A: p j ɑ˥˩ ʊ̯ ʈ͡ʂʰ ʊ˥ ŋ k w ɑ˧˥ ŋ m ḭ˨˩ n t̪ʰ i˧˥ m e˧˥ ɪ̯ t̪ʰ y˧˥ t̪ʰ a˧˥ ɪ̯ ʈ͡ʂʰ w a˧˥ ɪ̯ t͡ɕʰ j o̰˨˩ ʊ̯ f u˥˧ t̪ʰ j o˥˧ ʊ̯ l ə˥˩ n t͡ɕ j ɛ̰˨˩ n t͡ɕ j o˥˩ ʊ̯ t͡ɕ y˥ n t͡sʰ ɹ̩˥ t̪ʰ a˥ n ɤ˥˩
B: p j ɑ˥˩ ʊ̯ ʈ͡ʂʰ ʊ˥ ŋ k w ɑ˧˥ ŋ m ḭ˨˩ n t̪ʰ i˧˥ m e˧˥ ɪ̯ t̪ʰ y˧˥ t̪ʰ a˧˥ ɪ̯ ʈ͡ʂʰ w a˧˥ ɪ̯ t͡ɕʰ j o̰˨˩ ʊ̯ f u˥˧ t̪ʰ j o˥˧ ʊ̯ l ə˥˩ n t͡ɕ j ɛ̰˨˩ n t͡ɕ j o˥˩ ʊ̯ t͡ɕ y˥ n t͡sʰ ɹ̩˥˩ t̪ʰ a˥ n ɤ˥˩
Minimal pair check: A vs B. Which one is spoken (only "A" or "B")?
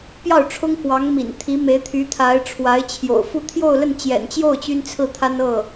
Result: B